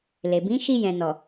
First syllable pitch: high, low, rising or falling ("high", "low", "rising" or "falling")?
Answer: low